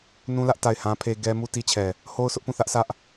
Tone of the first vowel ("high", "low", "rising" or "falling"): high